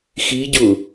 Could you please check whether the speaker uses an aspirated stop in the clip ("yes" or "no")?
no